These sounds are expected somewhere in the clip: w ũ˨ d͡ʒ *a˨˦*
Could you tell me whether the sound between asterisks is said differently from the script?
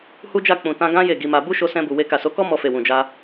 yes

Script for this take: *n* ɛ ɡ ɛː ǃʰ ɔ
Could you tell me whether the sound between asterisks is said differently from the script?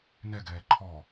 no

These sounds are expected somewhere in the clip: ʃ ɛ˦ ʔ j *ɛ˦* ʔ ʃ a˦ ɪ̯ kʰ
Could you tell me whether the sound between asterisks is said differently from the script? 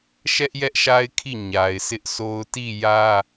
no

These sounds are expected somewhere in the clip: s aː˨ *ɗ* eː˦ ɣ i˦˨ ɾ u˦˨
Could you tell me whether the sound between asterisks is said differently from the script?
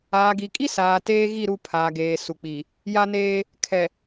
yes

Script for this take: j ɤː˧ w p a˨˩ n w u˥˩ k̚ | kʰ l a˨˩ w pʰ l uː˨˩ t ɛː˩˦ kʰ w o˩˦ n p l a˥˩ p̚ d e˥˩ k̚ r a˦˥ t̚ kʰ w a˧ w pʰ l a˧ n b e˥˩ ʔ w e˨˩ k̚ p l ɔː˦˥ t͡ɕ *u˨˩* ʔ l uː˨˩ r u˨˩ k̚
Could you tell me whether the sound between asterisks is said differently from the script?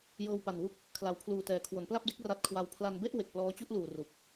yes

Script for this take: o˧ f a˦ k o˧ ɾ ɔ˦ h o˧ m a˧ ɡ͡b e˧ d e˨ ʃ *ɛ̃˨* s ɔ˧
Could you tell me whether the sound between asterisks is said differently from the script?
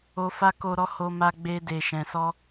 no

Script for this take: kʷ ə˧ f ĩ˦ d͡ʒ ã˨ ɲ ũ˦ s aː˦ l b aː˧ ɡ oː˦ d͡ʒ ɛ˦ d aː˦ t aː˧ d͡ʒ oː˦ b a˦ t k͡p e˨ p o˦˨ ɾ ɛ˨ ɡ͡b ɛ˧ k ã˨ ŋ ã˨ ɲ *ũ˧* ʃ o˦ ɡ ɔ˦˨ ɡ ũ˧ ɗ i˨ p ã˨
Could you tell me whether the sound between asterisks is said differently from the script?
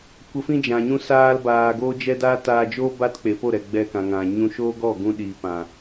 no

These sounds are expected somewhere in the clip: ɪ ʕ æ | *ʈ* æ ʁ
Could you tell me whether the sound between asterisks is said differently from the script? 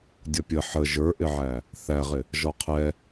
yes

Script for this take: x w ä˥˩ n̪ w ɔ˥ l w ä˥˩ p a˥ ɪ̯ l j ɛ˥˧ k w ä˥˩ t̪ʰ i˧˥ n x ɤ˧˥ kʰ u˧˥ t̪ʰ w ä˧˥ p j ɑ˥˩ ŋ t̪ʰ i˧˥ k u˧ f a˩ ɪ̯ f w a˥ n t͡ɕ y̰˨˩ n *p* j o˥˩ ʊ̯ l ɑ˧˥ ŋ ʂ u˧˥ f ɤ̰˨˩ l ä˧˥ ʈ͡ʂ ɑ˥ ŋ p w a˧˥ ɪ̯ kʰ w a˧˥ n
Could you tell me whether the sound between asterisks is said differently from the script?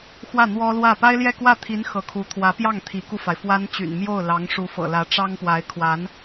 yes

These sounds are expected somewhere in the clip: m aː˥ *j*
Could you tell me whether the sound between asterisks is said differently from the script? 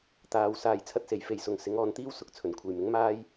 no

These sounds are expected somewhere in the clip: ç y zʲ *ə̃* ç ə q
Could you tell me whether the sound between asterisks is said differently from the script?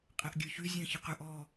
no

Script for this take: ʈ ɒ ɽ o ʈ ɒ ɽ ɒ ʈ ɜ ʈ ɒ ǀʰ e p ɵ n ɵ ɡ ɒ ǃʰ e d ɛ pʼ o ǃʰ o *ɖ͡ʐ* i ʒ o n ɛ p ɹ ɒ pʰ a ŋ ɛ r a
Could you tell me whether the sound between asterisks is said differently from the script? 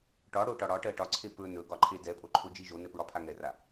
yes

